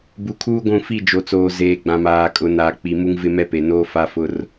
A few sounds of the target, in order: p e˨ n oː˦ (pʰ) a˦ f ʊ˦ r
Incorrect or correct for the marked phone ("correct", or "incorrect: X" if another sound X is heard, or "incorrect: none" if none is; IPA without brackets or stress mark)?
incorrect: f